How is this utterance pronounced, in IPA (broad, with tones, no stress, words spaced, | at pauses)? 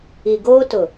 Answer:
i˨ɡoː˦tʊ˨